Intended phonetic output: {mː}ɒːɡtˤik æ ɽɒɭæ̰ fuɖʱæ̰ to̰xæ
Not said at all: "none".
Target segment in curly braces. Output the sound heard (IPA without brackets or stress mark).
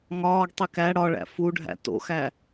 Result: ŋ